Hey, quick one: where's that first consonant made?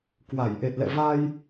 velum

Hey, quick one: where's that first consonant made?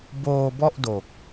lips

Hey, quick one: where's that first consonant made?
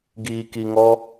velum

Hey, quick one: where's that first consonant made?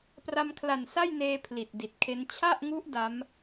lips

